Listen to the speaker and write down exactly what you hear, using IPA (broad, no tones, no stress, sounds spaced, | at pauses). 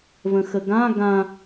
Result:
v ə̃ x ə ɡ ã ɡ ã